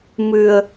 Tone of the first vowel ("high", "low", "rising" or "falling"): low